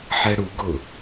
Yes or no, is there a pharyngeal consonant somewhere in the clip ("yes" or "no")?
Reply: yes